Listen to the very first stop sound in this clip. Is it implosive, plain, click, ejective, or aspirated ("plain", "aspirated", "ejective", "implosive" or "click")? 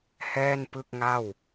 plain